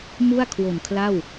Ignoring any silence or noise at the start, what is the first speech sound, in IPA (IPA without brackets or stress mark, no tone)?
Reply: m